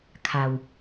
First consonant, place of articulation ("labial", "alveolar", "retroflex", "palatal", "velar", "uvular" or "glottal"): velar